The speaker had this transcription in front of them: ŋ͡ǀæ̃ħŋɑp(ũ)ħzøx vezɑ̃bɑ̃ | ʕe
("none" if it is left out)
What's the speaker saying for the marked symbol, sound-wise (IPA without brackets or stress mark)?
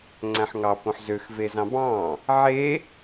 õ